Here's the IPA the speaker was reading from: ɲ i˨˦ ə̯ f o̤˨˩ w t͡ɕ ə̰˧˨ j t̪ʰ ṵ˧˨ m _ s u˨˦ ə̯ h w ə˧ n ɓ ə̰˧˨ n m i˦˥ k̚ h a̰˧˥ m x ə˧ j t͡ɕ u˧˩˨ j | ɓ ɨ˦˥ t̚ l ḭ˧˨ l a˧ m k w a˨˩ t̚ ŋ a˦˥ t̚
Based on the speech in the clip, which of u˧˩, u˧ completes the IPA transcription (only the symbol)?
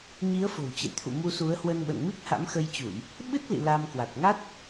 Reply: u˧